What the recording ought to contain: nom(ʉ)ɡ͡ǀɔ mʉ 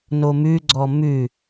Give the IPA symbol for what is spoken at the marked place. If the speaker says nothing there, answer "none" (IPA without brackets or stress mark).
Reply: ʉ